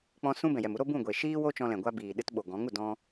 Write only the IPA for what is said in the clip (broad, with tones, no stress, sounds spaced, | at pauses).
k͡p ɔ̃˧ s ũ˧ b ɛ̃˨ j ɛ˨ m u˦ ɾ o˦ b ũ˦˨ ɡʷ eː˨ ʃ iː˦ w o˦ t͡ʃ ɔ̃˧ l ɛ̃˨ ɡʷ a˦ b iː˨ ɗ ɨ˧ t ɓ o˨ ɡ ɔ̃˨˦ ŋ u˨ d ɔ̃˦